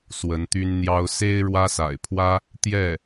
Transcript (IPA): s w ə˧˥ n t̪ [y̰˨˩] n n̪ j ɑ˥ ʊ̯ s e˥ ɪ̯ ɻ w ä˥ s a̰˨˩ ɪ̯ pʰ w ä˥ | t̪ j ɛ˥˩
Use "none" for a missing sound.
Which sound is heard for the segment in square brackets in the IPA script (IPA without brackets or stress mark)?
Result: y˥